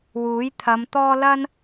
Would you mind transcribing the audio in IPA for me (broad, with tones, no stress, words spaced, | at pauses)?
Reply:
wuː˨˥jt̪ʰɐ˨˧mt̪ɔː˥ lɐ˥n